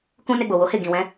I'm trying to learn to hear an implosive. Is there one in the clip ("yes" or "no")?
no